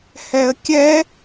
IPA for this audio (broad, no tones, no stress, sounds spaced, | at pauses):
h ɛ ə̯ kʲ ɛ